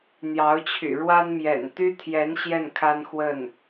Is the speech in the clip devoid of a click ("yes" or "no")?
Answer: yes